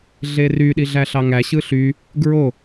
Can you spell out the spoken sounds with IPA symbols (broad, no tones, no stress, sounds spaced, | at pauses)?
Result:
ɮ e r y ɗ i ɮ æ ɬ ɑ ŋ æ ɕ ɯ ɬ y | ɡ ɹ o